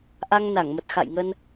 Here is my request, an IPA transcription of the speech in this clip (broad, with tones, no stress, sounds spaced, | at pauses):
ʔ a˧ ŋ n a˧˩ ŋ m ə˨˩ t̚ x a̰˧˨ j ŋ ə˧ n